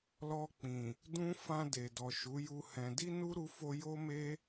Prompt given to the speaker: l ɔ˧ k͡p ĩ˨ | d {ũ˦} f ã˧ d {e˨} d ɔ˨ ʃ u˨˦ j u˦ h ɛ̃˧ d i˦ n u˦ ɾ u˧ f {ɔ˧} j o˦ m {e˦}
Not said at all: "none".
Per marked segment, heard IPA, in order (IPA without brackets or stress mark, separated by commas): ũ˦, e˨, o˧, e˦